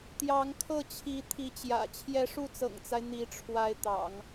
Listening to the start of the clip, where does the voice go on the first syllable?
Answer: rising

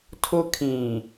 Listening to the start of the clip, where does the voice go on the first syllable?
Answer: high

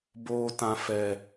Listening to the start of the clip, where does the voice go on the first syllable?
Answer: high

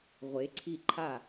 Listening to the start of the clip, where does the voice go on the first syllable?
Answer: rising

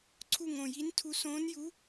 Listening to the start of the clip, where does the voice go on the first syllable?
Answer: falling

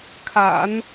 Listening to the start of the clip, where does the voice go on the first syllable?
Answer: low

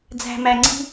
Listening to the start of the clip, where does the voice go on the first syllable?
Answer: low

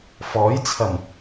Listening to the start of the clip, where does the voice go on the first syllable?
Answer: rising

